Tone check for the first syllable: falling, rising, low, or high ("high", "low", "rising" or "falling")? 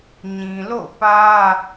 low